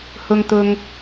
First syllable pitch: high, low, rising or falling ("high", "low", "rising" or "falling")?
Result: low